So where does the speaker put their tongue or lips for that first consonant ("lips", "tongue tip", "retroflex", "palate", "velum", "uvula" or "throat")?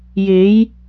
palate